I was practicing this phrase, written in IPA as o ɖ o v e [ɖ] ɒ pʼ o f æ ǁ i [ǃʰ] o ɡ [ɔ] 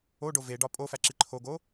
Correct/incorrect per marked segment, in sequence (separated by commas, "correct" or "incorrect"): correct, correct, incorrect